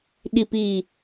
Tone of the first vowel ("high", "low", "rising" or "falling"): low